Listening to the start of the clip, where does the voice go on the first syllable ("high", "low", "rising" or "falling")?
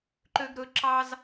high